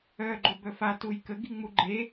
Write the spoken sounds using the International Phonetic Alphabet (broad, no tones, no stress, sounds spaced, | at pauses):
œ ɡ͡ǃ o b œ f a t u j k ə ɡ i ŋ͡m u ɡ͡ǃ e